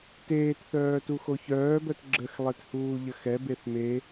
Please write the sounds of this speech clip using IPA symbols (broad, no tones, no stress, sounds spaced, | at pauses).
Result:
t eː t θ œː t u x o ç œː b œ t ɡ͡ǁ ə x lˠ e t h uː ʎ ə x ɛ b e θ m e